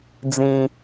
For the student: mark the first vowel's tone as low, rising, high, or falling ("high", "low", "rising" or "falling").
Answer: low